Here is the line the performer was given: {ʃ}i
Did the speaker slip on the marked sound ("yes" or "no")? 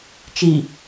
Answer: yes